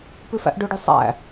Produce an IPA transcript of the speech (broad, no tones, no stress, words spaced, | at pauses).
pʉfæ̰ʔɖɵɖy sˤæ̰